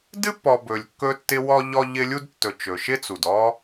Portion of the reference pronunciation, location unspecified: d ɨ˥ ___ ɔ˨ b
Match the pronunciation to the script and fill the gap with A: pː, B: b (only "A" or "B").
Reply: A